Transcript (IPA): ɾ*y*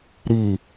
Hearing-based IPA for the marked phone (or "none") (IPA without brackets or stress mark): i